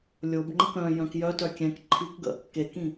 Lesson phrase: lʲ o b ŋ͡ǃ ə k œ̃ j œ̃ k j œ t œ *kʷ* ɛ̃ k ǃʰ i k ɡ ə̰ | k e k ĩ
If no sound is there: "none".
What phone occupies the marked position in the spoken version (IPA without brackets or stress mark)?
kʲ